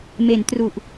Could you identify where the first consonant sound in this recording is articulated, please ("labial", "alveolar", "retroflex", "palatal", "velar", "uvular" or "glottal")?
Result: labial